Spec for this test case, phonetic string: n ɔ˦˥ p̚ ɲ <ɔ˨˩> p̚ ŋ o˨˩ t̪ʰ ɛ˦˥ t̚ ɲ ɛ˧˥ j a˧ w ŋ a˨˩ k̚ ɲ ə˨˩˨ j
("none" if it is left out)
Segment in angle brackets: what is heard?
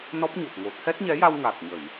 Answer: o˨˩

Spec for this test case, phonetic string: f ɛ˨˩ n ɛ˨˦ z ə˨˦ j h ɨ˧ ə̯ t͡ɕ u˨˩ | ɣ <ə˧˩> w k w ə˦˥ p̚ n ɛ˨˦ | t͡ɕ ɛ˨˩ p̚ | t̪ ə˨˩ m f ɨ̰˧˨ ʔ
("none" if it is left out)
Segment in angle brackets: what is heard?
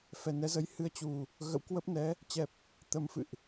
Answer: ə̰˧˨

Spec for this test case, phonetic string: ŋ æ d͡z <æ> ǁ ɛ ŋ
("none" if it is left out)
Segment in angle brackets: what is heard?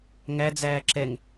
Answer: æː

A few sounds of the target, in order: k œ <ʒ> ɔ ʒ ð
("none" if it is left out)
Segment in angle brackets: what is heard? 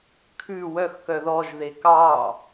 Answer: ð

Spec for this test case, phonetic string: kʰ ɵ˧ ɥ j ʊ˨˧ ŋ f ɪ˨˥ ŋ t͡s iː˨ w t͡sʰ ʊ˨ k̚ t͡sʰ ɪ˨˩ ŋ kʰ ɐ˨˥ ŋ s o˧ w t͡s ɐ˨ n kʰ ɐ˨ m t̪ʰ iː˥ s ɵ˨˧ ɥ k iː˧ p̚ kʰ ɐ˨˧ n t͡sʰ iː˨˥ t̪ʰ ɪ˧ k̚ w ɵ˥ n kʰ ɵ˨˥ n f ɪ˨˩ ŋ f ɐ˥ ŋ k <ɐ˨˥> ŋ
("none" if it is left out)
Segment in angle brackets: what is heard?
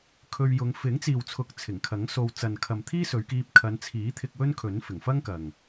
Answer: ɐ˨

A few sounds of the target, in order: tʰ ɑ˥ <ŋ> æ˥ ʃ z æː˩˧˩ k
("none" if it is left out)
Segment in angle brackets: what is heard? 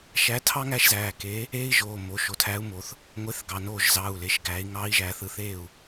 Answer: ŋ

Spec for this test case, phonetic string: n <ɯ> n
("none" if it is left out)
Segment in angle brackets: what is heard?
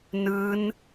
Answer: ɯ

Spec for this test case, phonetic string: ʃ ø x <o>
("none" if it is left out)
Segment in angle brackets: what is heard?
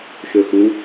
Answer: u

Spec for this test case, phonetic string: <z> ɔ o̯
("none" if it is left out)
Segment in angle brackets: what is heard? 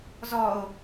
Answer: z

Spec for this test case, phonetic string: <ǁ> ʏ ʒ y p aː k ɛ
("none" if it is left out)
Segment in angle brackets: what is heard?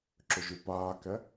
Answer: ǁ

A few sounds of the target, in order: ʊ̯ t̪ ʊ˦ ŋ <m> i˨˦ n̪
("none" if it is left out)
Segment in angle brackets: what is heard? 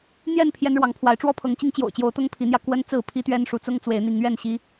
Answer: pʰ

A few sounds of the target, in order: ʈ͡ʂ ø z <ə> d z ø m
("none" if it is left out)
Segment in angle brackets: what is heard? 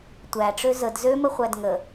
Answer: ə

